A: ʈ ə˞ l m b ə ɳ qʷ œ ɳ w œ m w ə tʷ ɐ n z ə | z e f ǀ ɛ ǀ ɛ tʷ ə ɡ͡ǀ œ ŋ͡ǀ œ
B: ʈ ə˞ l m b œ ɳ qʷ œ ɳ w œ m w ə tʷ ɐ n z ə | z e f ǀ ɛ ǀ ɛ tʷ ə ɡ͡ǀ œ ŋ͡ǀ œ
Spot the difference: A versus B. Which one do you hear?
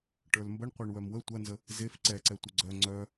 A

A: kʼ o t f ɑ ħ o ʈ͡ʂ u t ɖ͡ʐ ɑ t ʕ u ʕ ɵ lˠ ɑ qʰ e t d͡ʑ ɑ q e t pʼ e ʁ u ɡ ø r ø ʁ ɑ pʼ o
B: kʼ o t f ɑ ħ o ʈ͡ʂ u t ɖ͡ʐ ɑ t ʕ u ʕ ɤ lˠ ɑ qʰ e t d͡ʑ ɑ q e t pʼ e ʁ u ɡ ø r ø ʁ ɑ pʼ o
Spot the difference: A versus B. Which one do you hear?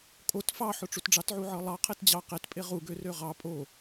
B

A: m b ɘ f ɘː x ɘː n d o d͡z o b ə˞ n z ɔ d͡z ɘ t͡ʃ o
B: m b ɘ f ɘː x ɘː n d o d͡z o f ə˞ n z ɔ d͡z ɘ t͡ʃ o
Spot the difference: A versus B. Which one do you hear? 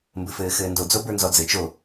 A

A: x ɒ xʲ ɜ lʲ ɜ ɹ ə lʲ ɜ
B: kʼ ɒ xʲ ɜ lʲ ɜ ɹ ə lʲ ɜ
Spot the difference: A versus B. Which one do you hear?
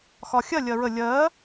A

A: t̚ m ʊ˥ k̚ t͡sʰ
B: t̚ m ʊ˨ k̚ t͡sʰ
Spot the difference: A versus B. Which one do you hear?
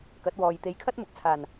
B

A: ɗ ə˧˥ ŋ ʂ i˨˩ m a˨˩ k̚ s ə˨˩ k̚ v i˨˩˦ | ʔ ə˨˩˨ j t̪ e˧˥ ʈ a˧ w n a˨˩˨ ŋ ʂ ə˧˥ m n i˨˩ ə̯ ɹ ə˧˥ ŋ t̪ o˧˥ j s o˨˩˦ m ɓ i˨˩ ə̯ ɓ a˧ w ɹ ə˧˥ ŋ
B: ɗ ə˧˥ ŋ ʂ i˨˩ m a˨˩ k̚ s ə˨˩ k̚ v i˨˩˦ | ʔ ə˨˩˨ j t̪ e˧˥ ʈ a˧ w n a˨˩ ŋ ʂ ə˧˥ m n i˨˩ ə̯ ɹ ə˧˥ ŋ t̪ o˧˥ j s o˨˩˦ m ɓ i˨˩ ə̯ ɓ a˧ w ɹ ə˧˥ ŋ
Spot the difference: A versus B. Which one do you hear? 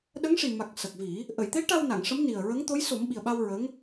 A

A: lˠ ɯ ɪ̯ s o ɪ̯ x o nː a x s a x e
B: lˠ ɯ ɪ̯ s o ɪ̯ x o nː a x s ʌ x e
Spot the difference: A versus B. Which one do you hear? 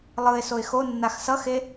B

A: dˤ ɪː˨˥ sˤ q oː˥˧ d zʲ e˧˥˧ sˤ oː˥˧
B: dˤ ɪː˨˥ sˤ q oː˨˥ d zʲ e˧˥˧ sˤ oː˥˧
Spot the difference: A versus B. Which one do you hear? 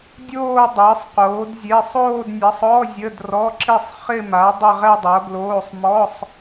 B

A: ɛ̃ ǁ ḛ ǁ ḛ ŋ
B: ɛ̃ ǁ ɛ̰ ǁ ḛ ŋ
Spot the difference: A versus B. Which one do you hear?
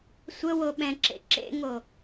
A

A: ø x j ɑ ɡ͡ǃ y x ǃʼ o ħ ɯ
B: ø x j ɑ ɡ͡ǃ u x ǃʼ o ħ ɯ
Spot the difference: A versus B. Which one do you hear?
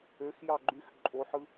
A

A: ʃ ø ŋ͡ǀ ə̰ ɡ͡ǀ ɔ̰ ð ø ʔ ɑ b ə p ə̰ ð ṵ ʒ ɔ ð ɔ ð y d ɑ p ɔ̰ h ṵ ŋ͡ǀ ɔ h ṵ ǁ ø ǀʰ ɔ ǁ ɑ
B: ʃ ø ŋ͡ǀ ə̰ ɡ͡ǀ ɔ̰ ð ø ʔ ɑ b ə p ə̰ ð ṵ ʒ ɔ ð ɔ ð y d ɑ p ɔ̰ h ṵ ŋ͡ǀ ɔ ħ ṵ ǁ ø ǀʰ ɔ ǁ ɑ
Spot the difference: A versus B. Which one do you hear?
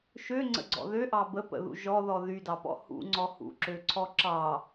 A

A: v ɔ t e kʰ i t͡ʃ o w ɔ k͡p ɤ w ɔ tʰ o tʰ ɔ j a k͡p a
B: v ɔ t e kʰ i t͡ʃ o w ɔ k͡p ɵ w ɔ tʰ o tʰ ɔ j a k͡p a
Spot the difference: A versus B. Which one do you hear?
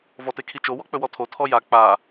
B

